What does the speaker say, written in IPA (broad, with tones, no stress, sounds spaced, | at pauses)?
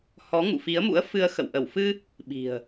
h ɔ˨˦ ŋ ṵ˧˨ f i˨˦ ə̯ m ṵ˧˥ ə̯ f ɨ˧ ə̯ x ə̰˧˨ w ʔ ə˧˩ w f ɨ˧ | ɓ i̤˨˩ ə̯